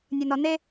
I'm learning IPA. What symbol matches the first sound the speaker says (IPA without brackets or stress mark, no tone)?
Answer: nʲ